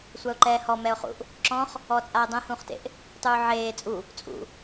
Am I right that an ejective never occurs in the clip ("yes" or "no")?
no